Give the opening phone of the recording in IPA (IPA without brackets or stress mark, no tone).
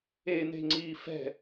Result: e